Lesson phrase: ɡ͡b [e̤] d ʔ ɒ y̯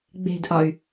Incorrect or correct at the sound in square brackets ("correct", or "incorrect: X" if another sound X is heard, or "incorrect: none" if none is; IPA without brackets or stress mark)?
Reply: correct